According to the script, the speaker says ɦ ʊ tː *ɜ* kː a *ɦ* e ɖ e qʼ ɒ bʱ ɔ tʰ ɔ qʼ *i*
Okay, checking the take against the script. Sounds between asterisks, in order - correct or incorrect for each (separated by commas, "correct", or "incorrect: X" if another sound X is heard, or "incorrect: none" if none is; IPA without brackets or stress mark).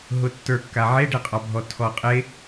incorrect: ə˞, incorrect: ʕ, incorrect: e